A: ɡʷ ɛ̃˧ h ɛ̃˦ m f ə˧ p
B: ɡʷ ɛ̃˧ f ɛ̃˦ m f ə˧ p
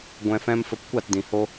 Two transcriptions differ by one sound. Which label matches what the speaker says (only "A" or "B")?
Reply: B